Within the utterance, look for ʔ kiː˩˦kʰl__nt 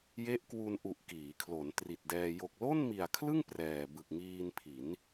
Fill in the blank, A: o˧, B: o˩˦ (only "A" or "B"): B